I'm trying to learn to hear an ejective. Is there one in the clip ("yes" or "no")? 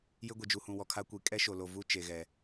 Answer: yes